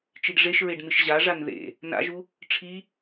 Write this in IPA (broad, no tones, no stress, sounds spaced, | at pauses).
t͡ʃ i ɖ ʐ e ʃ ɹ e ɖ n̪ ɨ ʃ ʑ a ʐ a n ð ḛ | n a̰ ʒ u | ʈ͡ʂʰ i